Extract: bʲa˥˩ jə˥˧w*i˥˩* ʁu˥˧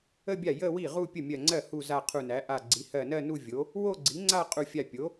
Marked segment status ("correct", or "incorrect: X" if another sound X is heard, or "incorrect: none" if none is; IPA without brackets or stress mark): correct